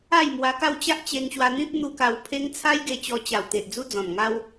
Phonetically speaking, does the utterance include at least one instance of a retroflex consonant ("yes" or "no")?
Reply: no